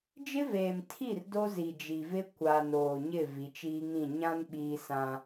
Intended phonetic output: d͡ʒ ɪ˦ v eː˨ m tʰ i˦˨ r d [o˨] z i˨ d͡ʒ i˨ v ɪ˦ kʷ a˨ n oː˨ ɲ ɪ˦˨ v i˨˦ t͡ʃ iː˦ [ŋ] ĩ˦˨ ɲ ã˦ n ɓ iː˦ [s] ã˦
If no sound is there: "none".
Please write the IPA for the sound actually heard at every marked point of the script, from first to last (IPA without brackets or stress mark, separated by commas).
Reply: o˦, ŋ, s